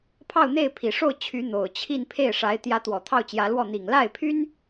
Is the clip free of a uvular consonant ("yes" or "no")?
yes